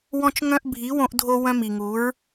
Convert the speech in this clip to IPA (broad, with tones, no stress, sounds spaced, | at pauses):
w ɔ̃˧ t͡ʃ ŋ œ̃˧ ʔ bʱ i˨˦ w õ˧ ʔ dʱ o˧ w œ̃˧ m i˨ ŋ u˨˦ ɹ